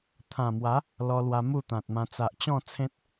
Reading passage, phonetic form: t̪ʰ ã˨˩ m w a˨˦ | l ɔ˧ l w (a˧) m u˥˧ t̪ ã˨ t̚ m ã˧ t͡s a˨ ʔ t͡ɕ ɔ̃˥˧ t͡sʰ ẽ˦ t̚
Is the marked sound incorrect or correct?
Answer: correct